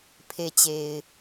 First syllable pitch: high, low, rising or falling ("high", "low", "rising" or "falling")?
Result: low